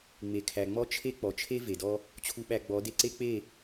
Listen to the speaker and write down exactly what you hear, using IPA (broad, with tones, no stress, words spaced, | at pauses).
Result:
ŋ͡me˨kʰæ˨ŋ͡mɔ˦t͡ʃʰe˦ k͡pɔ˨t͡ʃʰe˦ ve˨dɔ˦ | t͡ɕʰu˧ɓæ˧ ɡ͡bɔ˨˦ de˧ǀe˦ k͡pe˦˨